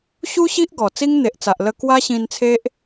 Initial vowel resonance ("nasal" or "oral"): oral